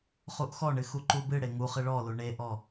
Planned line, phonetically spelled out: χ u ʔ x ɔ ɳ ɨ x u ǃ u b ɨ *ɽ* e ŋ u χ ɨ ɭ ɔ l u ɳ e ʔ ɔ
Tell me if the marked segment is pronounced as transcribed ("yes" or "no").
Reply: yes